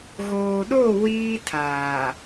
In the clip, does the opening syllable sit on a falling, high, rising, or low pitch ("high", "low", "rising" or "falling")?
low